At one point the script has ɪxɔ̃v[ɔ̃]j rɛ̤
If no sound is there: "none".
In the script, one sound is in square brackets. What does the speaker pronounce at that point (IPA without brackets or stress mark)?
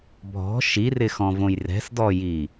õ